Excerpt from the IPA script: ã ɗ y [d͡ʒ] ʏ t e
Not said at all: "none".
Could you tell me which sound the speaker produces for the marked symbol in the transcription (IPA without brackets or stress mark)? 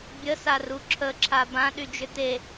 d͡ʒ